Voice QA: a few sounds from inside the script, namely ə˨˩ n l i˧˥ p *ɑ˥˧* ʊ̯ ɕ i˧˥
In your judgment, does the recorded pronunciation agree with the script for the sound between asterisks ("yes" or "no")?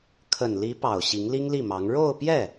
no